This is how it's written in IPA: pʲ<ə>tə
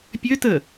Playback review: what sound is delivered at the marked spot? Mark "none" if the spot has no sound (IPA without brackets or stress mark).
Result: ø